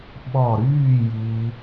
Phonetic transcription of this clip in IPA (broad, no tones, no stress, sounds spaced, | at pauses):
ɓ ɔ ɾ yː j iː